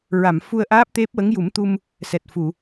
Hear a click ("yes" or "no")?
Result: no